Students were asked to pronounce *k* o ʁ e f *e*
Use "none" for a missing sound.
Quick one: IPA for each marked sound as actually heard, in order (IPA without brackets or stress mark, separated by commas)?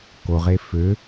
k, ø